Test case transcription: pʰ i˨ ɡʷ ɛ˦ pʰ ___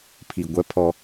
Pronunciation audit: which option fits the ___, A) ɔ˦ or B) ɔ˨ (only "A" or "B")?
A